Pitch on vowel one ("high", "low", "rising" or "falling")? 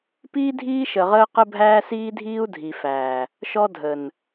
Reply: high